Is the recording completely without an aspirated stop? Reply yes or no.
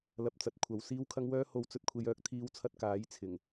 no